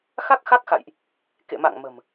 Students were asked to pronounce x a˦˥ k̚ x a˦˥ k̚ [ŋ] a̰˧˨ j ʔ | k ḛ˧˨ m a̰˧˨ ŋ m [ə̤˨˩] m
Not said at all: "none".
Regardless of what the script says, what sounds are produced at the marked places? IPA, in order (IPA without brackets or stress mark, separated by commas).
x, ə̤˨˩